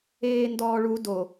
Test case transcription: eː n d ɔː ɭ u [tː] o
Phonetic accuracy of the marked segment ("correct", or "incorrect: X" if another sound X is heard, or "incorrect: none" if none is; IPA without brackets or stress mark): incorrect: d